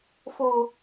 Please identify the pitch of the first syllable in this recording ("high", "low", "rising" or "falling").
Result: high